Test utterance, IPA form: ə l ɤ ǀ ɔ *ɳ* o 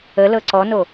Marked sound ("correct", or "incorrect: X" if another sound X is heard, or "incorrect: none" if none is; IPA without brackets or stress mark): incorrect: n